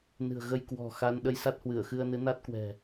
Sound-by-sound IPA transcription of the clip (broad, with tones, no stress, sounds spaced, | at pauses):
n ɨ̤˨˩ ə̯ ɣ ə˧ j k w ɔ̤˨˩ x a˧ n ɗ ə˧ j s a˦˥ t̚ h w ɨ˧˩ ə̯ x ɨ˧ ə̯ n ɨ˨˦ n a˦˥ t̚ k w ɛ̤˨˩